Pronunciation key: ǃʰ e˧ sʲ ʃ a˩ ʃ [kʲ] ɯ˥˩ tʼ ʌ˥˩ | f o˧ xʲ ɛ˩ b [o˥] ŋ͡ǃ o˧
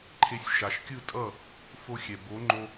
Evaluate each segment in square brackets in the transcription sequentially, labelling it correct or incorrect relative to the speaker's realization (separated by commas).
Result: correct, incorrect